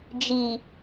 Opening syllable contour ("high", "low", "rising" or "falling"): low